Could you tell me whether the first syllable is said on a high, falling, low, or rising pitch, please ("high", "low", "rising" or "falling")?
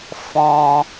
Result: low